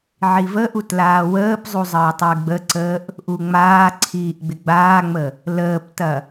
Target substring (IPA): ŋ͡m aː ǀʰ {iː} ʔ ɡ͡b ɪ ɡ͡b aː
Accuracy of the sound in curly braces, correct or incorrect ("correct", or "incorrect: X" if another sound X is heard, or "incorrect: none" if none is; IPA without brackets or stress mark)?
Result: correct